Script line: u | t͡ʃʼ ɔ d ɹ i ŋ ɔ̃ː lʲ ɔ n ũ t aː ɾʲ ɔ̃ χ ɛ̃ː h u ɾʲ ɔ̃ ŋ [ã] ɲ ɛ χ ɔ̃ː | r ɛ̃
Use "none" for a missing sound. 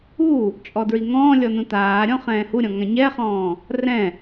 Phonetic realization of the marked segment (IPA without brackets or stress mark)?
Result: ã